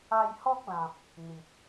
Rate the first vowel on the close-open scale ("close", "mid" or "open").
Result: open